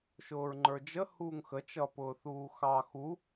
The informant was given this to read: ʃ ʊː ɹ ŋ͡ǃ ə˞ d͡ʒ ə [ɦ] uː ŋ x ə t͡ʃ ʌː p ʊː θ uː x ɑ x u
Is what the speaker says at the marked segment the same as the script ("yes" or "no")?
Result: no